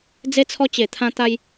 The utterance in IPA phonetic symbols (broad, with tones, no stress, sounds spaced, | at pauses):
d͡z e˧ t͡sʰ ɔ˧ t͡ɕ e˨˩ t̪ʰ ã˧ t̪ a˧ j